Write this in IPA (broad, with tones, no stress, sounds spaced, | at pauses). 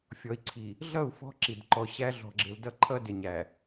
fʲ ɔ˨ i̯ ǀʰ i˨ | ɮ ʌ˦˨ u̯ f ɔ̤˦ ǁ i˨ d ǃ ɔ˨ ɕ æ˦ ɮ ɔ̤˨ ɡ͡ǁ ɪ˨ l d ʌ˦ ǃʰ ʌ˦ d ɪ˨ ɲ æ˨